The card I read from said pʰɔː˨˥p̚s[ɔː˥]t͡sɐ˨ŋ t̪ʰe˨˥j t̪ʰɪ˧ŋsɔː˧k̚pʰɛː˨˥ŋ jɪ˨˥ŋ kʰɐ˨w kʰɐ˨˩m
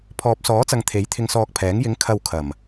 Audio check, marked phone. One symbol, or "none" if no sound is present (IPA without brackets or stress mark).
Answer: ɔː˨˥